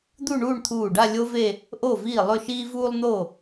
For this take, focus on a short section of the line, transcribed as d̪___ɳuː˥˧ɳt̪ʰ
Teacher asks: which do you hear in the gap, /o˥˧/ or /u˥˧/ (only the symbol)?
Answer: u˥˧